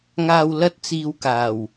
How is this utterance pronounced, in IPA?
ŋ aː˨ w l ɐ˧ t̚ t͡s iː˨ w k aː˨˩ w

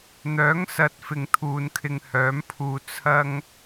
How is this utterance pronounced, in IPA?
n̪ œː˨˥ ŋ s ɐ˨˥ t̚ f ɪ˧ ŋ t̪ʰ uː˨˧ n kʰ ɪ˧ ŋ h œː˨˥ m pʰ uː˧ t͡sʰ ɐ˧ ŋ

